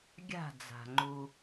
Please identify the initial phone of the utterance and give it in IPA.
ɡʲ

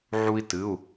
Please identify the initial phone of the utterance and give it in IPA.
ʕ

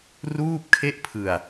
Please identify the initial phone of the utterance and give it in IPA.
r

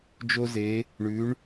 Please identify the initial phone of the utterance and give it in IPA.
d͡ʒ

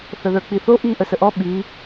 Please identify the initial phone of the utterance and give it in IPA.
θ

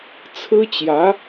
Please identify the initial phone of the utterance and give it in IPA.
t͡sʰ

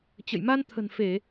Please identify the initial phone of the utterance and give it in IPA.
t͡ɕ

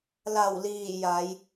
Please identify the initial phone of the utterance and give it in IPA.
l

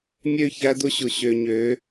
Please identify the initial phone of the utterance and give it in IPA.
mʲ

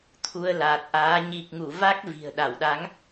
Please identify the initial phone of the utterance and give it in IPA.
t̪ʰ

